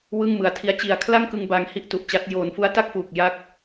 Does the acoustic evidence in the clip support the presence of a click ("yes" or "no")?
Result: no